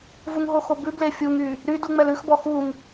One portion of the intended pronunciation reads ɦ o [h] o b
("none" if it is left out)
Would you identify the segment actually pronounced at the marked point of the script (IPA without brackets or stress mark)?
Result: x